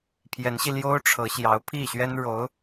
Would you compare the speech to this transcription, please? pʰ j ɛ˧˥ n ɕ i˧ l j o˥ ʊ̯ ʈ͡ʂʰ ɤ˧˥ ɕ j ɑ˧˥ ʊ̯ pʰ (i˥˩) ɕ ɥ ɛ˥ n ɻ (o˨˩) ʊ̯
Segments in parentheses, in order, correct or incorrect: correct, incorrect: o˧˥

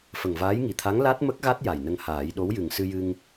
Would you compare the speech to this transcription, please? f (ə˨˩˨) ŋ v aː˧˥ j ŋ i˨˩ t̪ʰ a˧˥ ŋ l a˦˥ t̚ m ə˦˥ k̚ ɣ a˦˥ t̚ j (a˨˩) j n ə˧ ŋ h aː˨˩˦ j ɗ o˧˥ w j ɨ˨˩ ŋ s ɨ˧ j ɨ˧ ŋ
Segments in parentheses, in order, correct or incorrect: incorrect: ə˨˩, correct

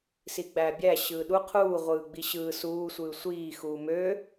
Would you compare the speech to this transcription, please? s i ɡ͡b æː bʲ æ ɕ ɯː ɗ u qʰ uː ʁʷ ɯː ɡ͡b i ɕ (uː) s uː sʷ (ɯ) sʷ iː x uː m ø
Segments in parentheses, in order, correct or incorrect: incorrect: ɯː, incorrect: ɯː

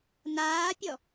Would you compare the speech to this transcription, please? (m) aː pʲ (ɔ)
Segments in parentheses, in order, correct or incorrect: incorrect: n, correct

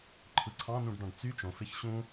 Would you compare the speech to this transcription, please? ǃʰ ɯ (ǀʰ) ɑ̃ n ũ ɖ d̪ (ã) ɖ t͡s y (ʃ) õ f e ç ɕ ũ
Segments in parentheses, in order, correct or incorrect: correct, incorrect: ɑ̃, incorrect: t͡ʃ

